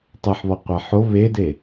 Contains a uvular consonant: yes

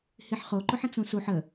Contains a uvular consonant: yes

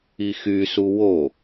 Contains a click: no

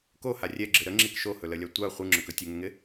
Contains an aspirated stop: no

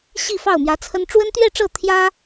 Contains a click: no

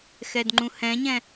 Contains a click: yes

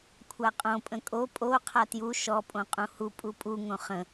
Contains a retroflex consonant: no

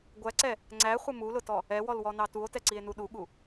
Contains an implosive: yes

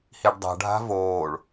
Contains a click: no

